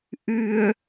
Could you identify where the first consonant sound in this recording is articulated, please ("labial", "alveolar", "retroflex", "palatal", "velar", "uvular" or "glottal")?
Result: glottal